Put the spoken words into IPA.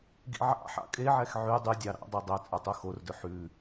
ɡ ḭ ʕ ɑ̰ ħ ɑ̰ kʼ e ʕ ɛ x ʕ y dˤ y dʲ ɑ ɾ ɑ̰ dˤ ɛ dˤ ɛ t͡sʼ œ tˤ u x o r d ɵ ħ ʉ

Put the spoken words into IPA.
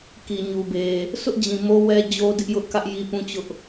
k i˨ ɲ u˨ b e˨ | sʰ ʊ˦ ʔ d͡ʑ ĩ˨ m o˦ w ɛ˦ d͡ʑ o˦ d ɪ˦ ʔ j ʊ˦ ʔ k ä˦ ʔ j i˦ p ũ˦ t͡ɕ ʊ˦ ʔ

